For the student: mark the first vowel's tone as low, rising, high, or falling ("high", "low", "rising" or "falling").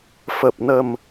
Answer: low